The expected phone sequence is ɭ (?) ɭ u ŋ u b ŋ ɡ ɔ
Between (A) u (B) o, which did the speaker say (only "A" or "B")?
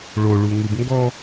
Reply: B